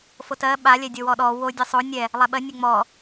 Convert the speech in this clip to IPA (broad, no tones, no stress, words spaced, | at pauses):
fotɜ ɓa lʲɛdʲowɔɗɔ wo dʲɜsˤo nʲɛ | lˠɛɓɜ nʲɛŋ͡mɔ